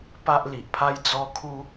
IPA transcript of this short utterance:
p a˦ ʔ l i˨ ʔ pʰ a˦ j d͡z ɔ˦ kʰ u˦

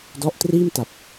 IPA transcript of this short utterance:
d ɔ˦˥ ʔ t r iː˥˩ m t a˨˩ p̚

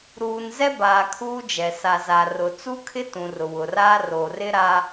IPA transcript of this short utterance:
ɾ uː˨ n z ɛ˦ b aː˨ kʰ uː˦ d͡ʒ ɛ˨ s a˨ z a˨ r ʊ˨ t͡s u˦ kʰ ɪ˦ t ũ˨ r ʊ˨ w ʊ˨ r aː˦ r o˨ r ɪ˦ ɾ a˦

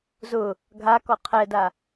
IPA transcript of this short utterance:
z ʊ | ɡʱ a k ɔ qʰ ɛ d a

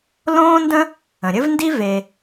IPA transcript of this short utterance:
l õː˥ n d ə̃˥ | ə̃˩ ɾʲ ɘ˥ v n d i˥ v e˩

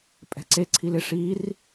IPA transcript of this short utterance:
pʼ ɛ̤ ǀ e ǀʰ i l ɪ ʂ i r

